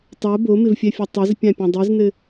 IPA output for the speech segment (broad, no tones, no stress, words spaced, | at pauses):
tˤo bomɪvfʲɛfʲɘ tˤɪz pʲãpʲɛ̃dˤiznɘ